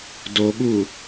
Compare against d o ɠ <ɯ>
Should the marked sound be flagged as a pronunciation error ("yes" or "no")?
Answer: yes